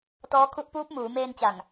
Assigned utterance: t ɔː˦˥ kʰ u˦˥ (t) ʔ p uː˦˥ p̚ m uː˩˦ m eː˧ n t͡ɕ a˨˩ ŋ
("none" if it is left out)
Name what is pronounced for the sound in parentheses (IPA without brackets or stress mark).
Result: none